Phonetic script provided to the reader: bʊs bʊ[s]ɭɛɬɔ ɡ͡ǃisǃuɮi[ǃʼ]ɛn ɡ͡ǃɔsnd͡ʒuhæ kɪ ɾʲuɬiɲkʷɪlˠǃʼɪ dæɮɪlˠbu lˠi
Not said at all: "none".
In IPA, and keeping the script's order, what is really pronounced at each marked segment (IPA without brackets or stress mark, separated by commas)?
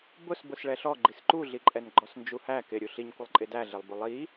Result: s, ǃʼ